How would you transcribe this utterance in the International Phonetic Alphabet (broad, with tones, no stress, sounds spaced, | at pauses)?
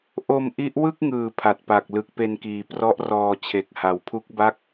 ʔ o˧ m ʔ i˦˥ ʔ w ɯ˥˩ k̚ ŋ ɯː˩˦ pʰ a˨˩ t̚ p a˨˩ k̚ l ɯ˨˩ k̚ p e˧ n k iː˨˩ p r ɔ˦˥ ʔ r ɔː˧ t͡ɕʰ e˨˩ k̚ h a˨˩ w pʰ u˦˥ k̚ b a˥˩ k̚